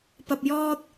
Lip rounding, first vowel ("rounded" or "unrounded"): unrounded